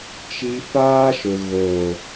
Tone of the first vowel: high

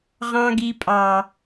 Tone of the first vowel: high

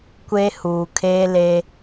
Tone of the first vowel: high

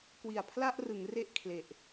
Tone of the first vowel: low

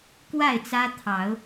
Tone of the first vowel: falling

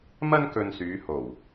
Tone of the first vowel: high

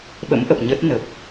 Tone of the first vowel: rising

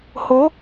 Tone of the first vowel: rising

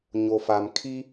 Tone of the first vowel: low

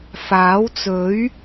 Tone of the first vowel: rising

